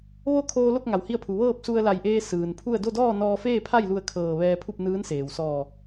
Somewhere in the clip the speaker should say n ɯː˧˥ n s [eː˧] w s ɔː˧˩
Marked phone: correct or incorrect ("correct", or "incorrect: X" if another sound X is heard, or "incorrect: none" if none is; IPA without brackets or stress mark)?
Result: incorrect: eː˩